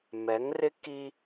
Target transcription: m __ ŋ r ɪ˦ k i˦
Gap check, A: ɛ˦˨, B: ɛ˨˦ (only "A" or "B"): B